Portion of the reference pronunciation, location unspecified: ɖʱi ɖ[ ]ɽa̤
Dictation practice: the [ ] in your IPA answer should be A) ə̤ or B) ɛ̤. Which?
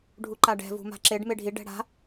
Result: B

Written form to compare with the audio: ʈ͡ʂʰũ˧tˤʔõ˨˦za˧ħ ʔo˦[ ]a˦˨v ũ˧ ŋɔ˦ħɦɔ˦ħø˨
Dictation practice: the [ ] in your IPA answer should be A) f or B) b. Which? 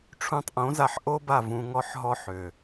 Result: B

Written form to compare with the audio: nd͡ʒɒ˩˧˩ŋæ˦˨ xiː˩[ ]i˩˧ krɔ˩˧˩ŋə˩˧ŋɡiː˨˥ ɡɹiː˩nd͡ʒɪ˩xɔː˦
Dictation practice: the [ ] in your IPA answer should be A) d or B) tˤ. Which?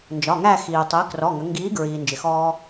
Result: B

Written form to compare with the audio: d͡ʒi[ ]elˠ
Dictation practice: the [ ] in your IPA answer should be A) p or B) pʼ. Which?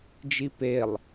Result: A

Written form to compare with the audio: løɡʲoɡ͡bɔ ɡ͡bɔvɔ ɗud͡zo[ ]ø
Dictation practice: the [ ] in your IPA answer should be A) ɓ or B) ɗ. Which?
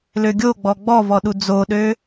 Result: B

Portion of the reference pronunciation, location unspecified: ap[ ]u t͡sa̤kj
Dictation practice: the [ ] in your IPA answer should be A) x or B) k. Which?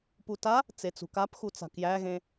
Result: A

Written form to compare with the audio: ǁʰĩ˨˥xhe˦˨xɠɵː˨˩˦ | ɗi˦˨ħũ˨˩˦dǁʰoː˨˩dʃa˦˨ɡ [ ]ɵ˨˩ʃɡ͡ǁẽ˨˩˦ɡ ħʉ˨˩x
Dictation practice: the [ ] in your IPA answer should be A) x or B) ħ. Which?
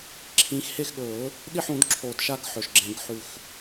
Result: B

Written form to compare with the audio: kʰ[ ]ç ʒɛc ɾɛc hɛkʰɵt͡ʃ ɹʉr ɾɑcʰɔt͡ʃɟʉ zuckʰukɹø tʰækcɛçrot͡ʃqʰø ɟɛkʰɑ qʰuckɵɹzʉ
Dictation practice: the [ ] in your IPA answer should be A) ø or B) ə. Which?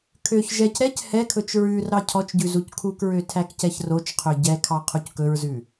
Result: A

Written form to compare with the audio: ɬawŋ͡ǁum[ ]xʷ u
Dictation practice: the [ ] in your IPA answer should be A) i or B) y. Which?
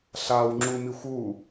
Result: A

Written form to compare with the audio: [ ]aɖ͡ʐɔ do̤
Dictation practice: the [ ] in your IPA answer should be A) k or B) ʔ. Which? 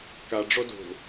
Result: A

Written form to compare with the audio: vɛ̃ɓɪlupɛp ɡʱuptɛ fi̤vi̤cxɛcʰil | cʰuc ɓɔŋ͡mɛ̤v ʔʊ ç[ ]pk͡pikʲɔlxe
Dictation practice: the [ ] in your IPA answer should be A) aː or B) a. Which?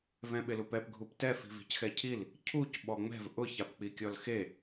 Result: B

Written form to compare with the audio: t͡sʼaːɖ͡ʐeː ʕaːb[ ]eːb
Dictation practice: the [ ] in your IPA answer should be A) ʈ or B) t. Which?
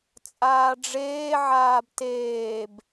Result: B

